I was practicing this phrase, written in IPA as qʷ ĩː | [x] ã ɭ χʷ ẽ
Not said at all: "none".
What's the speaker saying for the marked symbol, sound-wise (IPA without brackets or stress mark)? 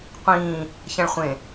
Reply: ç